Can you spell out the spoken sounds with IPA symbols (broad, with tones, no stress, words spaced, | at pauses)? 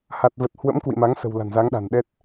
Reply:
ha˨˩t̚və˨˩t̚ hwə̰˧˥m kwḭ˧˨ma˨˦ŋsə̤˨˩w la̤˨˩nza˨˦ŋɗa̤˨˩nɗɛ˦˥t̚